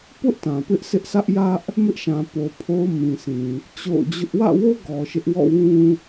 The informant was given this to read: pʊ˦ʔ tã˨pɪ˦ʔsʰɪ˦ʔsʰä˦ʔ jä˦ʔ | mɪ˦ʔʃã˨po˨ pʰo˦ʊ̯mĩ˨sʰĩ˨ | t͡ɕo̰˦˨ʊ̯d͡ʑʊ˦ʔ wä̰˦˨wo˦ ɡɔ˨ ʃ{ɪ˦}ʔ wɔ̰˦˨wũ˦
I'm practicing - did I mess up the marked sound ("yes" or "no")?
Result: no